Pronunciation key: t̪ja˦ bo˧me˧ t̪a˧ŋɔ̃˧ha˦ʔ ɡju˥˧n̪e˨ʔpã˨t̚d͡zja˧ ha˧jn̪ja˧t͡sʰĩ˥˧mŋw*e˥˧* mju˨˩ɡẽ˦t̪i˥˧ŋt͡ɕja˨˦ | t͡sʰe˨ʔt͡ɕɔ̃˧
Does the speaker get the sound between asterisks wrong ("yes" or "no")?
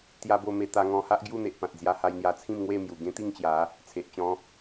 no